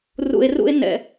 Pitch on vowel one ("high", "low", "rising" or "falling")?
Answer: low